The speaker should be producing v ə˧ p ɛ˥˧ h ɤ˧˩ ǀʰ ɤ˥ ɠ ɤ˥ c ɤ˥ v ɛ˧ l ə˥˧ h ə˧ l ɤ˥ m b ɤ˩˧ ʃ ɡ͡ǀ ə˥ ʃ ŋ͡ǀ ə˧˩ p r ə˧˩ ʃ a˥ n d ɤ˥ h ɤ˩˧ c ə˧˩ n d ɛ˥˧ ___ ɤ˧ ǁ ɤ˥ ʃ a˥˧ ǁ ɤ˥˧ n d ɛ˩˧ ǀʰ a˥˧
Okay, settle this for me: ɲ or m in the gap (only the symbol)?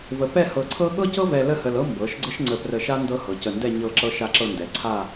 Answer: ɲ